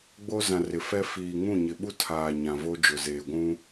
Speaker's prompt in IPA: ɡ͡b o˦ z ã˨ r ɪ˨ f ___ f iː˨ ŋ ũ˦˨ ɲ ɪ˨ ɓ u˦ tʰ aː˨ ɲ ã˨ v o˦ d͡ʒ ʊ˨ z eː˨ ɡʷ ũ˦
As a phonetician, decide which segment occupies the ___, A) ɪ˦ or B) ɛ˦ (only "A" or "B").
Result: B